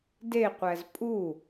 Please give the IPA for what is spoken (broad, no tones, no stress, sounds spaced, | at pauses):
d e qʷ æ z pʼ u